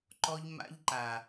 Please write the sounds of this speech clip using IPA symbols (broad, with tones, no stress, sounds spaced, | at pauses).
ǃ ɔ˦ ʎ m a̰˦ ʎ ǃ a˨